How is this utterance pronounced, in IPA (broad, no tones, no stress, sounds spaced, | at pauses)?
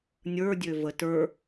nʲ ə˞ dʲ ø v ə t ə˞